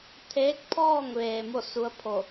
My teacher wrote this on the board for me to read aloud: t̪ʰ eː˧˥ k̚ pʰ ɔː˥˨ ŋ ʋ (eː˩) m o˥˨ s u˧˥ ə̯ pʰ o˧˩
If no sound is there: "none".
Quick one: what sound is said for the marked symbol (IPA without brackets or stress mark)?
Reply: eː˩